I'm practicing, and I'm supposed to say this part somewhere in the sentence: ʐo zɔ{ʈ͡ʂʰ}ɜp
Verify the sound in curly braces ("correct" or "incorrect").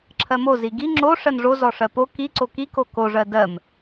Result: incorrect